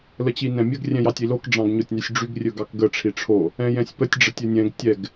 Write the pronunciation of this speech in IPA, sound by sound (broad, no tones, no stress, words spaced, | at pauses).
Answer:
lət͡ɕinɛ̃mʲəɡ rʲɛ̃jɑtʲilok ɖ͡ʐɑ̃ɡɲotʲnysʲɖ͡ʐyɡ rʲɵɡɑkɡə ʈ͡ʂʰiʈ͡ʂʰo | ɛ̃jɛ̃sʲpətʲ ɖ͡ʐətʲɵnʲɛ̃ɡ tʲɛɡ